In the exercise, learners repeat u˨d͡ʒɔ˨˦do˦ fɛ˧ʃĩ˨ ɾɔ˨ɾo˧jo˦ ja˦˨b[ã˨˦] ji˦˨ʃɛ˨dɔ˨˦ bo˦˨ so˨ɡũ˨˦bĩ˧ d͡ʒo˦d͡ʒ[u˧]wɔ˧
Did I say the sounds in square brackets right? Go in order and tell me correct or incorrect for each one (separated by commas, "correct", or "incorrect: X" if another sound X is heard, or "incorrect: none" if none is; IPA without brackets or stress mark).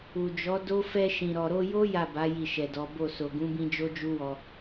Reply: incorrect: a˨˦, incorrect: u˦